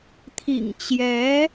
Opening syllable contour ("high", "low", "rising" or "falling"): low